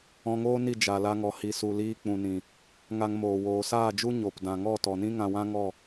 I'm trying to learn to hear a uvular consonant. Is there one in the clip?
no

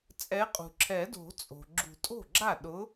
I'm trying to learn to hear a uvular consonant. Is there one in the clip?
yes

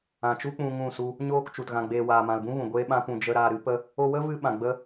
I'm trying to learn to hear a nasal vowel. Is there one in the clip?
yes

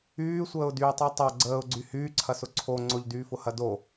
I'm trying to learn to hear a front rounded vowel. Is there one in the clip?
yes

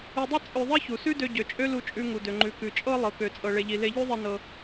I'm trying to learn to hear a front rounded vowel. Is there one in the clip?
yes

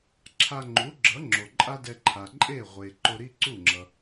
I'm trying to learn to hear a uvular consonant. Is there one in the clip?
yes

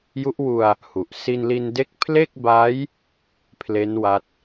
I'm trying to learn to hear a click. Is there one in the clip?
no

